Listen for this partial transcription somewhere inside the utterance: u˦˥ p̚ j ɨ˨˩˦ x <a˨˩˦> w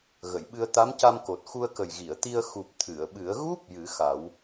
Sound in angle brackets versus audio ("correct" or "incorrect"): correct